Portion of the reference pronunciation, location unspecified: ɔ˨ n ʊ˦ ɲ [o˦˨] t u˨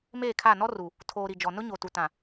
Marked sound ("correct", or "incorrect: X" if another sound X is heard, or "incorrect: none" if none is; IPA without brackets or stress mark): incorrect: o˨